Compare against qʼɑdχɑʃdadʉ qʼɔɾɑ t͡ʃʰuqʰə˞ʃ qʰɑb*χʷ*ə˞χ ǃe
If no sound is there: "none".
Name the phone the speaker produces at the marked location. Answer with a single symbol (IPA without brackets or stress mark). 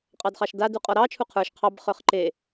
χ